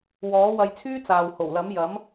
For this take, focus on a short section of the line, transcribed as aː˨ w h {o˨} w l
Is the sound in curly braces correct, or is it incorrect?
incorrect